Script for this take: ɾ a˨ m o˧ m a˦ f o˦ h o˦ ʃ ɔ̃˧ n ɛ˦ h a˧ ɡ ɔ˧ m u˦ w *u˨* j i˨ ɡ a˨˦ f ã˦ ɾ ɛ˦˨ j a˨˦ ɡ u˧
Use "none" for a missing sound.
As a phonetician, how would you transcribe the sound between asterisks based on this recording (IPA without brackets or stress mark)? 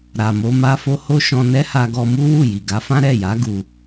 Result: u˦˨